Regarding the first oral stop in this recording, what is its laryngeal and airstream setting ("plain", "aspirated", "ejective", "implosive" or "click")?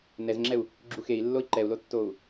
click